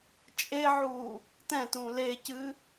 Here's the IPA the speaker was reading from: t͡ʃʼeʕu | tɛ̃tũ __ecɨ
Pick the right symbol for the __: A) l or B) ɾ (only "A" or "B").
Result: A